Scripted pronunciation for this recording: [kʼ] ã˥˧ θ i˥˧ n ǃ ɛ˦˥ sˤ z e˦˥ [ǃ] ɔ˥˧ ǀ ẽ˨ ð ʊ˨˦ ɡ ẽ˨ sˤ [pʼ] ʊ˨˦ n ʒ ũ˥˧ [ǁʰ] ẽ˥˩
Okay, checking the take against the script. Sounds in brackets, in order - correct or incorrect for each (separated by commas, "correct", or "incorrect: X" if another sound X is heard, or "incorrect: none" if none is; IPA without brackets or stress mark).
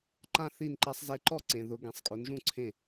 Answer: incorrect: ǃ, correct, incorrect: kʼ, incorrect: ǀʰ